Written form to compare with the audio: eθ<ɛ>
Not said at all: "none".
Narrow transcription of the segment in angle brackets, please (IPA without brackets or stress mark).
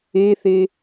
e